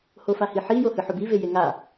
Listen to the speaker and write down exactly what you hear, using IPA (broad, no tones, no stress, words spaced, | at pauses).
hofahiħi johɨħobi vejeŋa